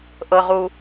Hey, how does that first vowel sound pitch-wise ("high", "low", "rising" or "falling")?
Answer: low